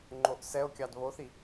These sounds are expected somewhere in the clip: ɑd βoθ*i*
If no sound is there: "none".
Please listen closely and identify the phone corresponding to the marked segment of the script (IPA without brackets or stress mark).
i